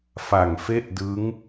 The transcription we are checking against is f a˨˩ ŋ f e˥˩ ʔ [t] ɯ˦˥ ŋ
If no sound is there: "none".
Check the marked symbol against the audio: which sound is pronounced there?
d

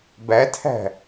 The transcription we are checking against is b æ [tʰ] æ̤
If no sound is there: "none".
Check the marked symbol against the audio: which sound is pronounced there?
tʰ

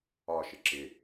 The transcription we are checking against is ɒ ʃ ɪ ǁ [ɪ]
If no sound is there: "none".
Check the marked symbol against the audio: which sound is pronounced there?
ɪ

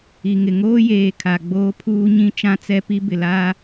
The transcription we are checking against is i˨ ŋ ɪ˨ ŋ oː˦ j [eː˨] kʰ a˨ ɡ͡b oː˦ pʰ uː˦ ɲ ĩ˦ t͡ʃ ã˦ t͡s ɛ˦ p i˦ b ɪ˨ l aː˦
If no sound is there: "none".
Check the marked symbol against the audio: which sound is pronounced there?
eː˨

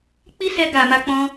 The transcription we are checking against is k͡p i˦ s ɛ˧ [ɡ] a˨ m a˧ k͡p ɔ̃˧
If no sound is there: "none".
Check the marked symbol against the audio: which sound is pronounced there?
ɡ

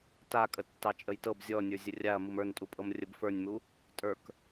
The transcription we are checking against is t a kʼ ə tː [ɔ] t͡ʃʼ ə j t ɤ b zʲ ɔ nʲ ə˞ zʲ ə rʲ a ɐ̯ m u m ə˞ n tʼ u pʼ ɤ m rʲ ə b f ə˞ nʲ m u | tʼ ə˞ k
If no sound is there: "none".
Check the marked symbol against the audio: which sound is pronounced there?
ɑ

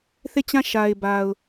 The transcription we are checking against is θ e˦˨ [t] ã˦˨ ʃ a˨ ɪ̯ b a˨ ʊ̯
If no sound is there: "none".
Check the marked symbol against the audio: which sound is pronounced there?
t͡ɕ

